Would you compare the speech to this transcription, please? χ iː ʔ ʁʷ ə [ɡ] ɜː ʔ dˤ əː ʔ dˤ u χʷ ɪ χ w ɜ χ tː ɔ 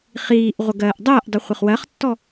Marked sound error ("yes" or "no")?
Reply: no